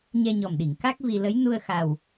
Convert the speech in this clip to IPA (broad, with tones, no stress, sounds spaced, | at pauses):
ɲ ɛ˧ ɲ ɔ˨˩ m ɗ i˨˩˨ ŋ k a˦˥ k̚ v i˧ l ə˧˥ j n u˧ ə̯ x a˨˩ w